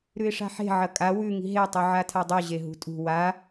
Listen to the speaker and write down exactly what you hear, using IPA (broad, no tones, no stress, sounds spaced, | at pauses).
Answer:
ɾ ʉ ɪ̯ ʂ a̤ ħ e̤ ʕ ɐ kʼ a w ʉ ŋ i̤ ɦ e tˤ u ʕ a tʰ a dˤ u ʑ e ɦ ṳ tʼ ṳ w a